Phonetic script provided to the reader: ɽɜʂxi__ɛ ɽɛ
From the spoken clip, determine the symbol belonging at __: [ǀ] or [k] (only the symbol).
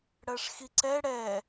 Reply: ǀ